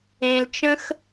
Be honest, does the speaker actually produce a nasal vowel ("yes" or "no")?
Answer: yes